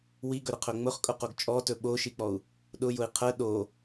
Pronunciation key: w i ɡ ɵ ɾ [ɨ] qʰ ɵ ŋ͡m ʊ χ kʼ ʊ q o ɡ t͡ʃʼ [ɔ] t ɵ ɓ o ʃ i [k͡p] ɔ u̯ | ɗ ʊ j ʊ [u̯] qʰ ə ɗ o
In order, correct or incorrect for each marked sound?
incorrect: ə, correct, correct, incorrect: i̯

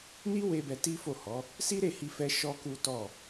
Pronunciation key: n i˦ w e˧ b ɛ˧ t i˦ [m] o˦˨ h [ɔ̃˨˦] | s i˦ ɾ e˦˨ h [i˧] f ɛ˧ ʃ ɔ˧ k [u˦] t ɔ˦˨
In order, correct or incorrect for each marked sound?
incorrect: f, incorrect: ɔ˨˦, correct, correct

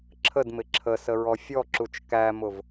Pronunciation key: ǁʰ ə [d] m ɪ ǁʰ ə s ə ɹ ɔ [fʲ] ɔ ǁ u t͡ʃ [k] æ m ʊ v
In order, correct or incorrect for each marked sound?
correct, correct, correct

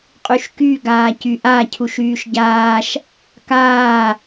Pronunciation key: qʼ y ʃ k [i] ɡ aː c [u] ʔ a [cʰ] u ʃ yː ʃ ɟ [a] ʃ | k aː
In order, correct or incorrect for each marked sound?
incorrect: y, incorrect: y, correct, incorrect: aː

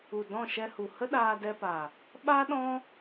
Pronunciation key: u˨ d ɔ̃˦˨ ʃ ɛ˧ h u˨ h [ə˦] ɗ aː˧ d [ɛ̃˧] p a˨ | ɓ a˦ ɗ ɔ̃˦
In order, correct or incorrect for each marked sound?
correct, incorrect: ɛ˧

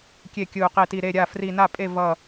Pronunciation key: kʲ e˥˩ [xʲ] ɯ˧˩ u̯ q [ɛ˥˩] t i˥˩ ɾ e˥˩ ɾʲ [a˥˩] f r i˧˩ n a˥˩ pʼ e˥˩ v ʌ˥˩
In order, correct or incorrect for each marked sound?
incorrect: kʲ, incorrect: e˥˩, correct

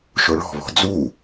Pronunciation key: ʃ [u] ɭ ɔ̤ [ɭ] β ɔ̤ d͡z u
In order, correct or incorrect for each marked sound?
incorrect: o, incorrect: none

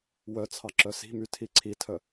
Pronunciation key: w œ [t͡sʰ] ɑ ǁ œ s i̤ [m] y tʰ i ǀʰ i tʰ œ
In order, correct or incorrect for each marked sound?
correct, correct

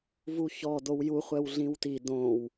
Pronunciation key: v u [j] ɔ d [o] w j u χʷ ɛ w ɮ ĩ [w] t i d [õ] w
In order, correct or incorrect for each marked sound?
incorrect: ç, correct, correct, correct

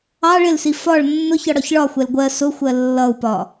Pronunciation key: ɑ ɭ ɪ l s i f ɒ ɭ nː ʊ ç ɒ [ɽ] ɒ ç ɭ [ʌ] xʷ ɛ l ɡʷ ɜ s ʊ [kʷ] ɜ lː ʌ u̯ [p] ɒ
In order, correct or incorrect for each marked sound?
correct, incorrect: ɒ, incorrect: xʷ, correct

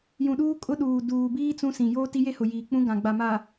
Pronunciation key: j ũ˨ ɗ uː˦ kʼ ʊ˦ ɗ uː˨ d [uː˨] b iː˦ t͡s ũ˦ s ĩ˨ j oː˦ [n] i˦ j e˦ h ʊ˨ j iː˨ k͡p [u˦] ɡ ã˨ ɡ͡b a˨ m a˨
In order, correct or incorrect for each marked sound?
correct, incorrect: t, incorrect: ũ˦

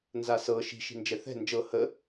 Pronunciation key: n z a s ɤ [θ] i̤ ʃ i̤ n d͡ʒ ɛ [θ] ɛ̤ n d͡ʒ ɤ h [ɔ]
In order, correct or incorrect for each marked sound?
incorrect: ʃ, correct, incorrect: ə

